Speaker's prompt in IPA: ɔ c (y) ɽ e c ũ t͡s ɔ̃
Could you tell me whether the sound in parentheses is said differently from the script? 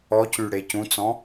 no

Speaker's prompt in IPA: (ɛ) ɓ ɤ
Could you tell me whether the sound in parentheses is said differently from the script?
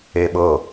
yes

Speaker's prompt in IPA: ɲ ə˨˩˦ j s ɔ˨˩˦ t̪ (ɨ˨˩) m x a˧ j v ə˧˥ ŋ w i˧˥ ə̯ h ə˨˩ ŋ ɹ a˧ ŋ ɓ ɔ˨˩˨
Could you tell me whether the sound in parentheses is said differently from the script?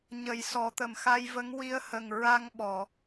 yes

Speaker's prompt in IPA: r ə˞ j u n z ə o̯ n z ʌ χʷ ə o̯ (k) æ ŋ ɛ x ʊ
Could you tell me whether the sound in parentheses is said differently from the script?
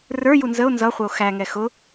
yes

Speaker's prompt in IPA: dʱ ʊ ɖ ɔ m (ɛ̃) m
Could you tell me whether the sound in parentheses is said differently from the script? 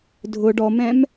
no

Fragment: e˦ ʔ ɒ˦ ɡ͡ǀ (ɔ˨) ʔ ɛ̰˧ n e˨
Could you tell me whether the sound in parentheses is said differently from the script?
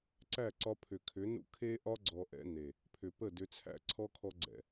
no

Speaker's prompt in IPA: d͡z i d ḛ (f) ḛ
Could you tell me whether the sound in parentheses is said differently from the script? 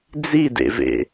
yes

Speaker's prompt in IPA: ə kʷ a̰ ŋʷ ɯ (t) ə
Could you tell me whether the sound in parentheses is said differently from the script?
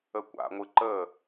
yes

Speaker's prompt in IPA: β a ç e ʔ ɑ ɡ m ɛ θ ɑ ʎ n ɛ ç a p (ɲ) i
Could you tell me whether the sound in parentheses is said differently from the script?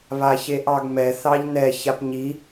no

